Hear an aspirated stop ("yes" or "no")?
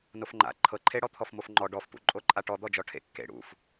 yes